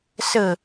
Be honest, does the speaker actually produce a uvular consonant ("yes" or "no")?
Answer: no